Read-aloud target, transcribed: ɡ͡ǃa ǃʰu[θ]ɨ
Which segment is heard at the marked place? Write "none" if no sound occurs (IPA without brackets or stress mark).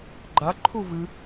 v